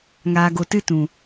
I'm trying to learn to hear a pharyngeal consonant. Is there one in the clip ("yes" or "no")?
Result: no